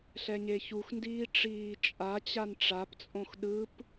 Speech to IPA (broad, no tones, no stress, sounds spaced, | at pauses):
ɬ ɛ ɲ e ç u x n d iː ʈ͡ʂ iː t͡ʃʼ a t͡ɕ a n ʈ͡ʂ a p t͡sʼ õ x ɗ ɯ p